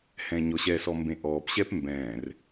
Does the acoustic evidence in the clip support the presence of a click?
no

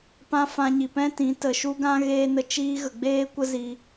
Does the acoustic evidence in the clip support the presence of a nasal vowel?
yes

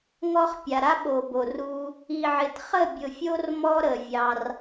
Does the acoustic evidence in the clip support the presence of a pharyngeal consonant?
yes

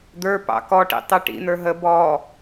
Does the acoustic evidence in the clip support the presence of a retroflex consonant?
yes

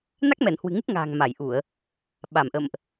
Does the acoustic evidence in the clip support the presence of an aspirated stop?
no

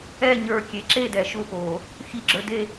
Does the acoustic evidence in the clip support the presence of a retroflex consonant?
no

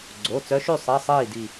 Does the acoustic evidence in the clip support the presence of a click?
yes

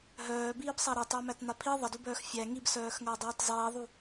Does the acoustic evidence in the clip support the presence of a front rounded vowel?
yes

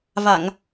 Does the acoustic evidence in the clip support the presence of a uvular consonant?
no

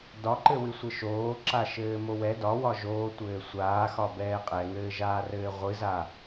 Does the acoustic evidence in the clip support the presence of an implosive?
no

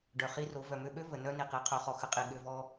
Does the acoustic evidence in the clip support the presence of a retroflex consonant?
yes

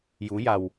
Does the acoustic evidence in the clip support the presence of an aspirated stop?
no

